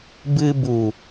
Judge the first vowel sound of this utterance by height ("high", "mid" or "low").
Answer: high